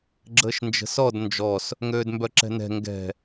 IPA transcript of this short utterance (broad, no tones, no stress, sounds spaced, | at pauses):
ɡ͡ǁ əː ʃ n d͡ʒ ə̤ s ɔ d n d͡ʒ ɔ s | ŋ øː d m b œ ǁ ɛ̤ n ɛ̤ ŋ ɡ ɛ̤